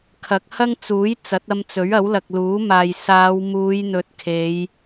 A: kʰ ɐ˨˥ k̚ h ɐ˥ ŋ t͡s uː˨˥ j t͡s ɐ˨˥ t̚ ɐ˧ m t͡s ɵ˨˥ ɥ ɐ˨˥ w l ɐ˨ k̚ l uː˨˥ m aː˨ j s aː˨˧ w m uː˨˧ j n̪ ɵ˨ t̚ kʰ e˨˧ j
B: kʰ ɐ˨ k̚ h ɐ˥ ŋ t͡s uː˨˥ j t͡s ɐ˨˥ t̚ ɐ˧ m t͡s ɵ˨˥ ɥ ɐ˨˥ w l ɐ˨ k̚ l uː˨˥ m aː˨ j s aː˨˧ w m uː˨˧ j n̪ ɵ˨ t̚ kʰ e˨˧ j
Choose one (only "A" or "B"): A